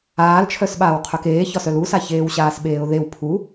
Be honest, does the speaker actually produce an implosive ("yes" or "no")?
yes